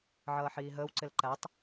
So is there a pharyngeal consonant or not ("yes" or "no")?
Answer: yes